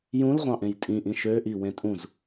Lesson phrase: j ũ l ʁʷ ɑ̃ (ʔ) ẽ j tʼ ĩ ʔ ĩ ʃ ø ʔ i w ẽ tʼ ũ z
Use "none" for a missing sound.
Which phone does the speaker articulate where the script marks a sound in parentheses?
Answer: ʔ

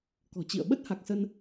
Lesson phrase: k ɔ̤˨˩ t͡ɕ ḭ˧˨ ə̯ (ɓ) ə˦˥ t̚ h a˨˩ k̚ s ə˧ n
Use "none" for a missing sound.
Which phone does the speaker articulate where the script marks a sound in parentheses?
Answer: ɓ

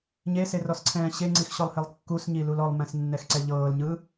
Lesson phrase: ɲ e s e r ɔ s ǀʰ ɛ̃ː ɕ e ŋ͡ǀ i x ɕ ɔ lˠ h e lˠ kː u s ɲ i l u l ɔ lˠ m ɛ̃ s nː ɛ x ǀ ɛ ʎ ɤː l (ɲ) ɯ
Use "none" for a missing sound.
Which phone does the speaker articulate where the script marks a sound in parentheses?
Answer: ɲ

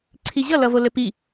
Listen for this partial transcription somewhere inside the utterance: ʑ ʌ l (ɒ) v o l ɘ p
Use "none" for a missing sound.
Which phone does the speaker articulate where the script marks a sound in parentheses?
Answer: ʌ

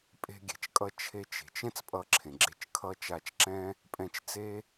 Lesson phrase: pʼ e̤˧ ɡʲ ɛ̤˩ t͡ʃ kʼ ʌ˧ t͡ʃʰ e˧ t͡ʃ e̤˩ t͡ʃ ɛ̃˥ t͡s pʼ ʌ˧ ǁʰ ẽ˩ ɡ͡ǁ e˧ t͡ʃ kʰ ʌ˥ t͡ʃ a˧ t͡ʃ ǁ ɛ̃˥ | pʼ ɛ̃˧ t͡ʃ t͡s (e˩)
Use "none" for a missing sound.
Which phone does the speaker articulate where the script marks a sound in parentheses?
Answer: e˥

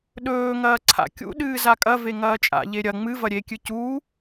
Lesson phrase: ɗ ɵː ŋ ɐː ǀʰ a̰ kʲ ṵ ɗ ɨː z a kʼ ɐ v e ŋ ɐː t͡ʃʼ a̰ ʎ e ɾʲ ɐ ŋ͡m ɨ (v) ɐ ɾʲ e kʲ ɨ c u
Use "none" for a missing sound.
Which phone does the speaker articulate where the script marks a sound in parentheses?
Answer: v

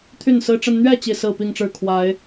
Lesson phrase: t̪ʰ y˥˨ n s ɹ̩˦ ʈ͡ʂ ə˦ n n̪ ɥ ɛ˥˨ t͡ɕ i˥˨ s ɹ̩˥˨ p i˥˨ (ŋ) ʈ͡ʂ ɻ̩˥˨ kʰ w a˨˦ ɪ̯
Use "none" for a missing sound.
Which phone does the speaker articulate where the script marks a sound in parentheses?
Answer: ŋ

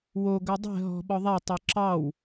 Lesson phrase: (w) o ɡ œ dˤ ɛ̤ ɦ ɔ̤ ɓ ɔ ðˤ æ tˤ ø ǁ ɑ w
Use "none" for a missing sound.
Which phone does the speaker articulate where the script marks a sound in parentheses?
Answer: w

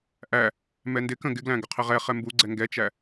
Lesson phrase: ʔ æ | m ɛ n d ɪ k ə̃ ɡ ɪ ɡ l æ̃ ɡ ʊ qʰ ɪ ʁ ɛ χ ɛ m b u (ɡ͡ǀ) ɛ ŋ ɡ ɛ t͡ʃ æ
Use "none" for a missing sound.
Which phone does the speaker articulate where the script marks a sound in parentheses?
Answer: ɡ͡ǀ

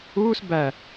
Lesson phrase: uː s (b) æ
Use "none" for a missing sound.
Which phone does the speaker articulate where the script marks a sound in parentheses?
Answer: b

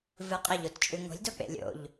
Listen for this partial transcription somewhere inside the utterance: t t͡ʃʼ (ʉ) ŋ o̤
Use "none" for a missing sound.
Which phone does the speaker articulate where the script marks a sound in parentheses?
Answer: ʉ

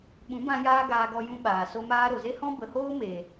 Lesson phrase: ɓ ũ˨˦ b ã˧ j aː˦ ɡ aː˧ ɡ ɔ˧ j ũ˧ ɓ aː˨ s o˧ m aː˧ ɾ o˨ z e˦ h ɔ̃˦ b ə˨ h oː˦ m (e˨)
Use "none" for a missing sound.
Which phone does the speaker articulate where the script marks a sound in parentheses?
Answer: e˨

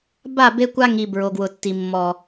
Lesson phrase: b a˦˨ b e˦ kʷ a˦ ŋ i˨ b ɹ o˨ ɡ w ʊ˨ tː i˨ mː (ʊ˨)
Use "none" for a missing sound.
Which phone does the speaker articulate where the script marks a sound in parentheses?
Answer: ɔ˨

